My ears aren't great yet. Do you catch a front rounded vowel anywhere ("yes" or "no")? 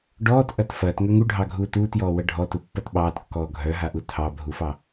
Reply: yes